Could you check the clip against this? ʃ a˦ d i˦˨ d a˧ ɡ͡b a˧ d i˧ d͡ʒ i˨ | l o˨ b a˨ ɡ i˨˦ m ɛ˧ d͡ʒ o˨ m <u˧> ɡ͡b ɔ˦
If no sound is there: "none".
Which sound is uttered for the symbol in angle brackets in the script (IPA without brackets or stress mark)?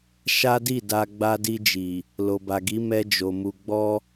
u˧